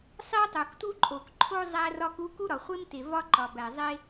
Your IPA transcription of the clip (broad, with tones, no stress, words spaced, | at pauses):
sˤe˥tˤo˩ktu˥ǃʼo˩k ǃʰo˥ zˤæ˥rɒ˥ku˥ ku˥ɾɒ˩χʷe˥mte˩ vɒ˥ǃɒ˩ bæ˩zˤe˥